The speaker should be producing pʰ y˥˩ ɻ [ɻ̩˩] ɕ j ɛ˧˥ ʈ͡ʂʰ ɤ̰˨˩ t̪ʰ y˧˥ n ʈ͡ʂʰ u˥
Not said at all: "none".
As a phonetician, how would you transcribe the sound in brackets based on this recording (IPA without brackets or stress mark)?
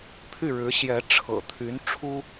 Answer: ɻ̩˧˥